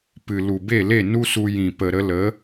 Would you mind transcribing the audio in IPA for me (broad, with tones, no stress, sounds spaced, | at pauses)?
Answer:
p ɨ˨ l u˨ b e˦˨ l e˦˨ n u˦ s u˧ j ĩ˨ p ə˨ ɾ ə˧ l ə˨˦